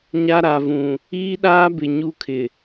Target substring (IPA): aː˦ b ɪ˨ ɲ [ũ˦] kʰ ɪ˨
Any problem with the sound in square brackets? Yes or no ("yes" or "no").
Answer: yes